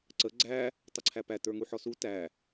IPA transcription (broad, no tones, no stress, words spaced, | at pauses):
ǀə ɡ͡ǀæ | tˤəǀʰæpæ tə˞ŋuħɔsu tæ